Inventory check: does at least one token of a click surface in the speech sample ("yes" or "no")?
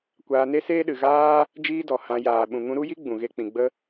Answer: no